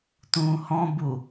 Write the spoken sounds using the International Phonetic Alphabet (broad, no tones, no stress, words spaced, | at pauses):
tũːhɔ̃bu